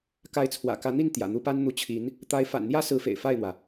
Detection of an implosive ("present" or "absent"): absent